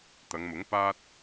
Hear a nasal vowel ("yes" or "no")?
no